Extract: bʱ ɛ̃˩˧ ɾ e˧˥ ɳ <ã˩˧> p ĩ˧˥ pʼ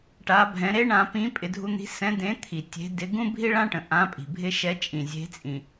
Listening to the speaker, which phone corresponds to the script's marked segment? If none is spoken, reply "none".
ã˩˧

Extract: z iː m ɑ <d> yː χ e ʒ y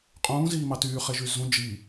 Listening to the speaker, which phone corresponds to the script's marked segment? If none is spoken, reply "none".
t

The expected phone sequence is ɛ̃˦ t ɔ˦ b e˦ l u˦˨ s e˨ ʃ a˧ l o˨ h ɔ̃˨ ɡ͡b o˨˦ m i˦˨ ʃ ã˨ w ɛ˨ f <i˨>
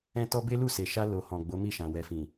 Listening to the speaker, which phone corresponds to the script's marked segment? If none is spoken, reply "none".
ĩ˨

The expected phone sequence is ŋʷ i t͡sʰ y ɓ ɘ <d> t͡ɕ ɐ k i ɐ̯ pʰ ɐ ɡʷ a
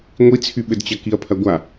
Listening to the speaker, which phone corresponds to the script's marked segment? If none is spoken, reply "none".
d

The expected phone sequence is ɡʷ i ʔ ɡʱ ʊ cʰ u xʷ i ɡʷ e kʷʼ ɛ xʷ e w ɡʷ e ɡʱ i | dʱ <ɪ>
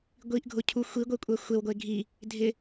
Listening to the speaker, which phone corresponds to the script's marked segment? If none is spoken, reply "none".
ɪ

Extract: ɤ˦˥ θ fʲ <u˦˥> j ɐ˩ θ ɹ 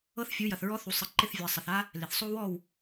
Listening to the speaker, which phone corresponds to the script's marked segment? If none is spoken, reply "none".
u˩˥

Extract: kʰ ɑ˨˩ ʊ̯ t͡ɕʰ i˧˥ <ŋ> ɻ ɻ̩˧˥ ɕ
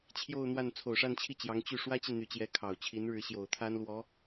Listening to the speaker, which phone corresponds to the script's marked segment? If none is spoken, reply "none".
n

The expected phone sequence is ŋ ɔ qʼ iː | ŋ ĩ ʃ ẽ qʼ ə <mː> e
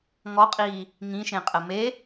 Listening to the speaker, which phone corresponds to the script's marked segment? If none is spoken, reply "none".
m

